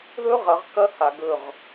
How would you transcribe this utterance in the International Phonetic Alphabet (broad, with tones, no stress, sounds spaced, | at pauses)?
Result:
ð ɵ˦ ʁ ɐ˨˦ ʁ k ɐ˦ h a˨ ɡ ɵ˦˨ ʁ